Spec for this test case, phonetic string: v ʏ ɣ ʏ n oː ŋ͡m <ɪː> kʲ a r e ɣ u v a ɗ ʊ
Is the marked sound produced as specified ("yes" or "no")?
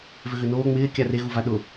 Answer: yes